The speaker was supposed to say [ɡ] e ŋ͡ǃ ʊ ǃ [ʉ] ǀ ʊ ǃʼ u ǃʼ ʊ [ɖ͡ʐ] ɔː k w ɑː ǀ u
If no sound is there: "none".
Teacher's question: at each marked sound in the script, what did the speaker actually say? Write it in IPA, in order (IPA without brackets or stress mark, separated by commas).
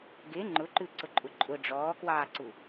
ɡ, ʉ, ɖ͡ʐ